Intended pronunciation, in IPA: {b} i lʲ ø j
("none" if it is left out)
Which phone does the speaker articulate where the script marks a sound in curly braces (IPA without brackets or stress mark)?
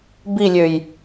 b